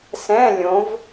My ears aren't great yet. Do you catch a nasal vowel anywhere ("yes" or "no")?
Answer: yes